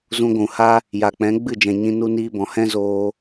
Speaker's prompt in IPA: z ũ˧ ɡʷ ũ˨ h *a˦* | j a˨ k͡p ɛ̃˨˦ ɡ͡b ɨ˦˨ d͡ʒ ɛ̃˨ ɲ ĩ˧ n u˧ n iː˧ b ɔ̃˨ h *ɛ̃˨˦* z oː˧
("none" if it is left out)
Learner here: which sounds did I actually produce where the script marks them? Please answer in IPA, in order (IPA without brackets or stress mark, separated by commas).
a˦, ɛ̃˦